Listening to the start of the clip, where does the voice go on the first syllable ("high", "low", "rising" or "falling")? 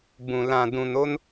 low